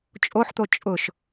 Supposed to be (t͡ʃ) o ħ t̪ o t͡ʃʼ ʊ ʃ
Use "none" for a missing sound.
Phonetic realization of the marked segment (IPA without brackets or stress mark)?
t͡ʃʼ